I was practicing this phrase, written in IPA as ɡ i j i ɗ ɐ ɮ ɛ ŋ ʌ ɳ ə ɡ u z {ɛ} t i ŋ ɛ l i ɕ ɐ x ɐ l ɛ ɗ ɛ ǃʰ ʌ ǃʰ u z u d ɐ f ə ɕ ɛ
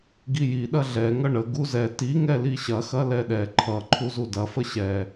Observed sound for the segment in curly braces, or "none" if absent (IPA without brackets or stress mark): ɛ